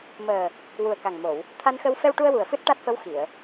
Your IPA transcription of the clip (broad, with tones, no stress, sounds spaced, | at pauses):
m əː˨˩ | w u˨˩ ə̯ k a˨˩ ŋ m o˨˩˨ w | t̪ʰ a˧ n x ə˧ w f ɛ˧ w ʈ u˧ ə̯ w u˨˩ ə̯ f ɨ˦˥ t̚ ʈ a˦˥ t̚ f ə˧˥ w x i˨˩˨ ə̯